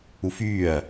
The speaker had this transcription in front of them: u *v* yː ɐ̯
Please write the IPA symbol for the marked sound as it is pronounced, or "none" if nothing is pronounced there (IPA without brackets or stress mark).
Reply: f